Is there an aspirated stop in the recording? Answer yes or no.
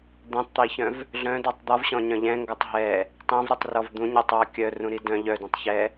no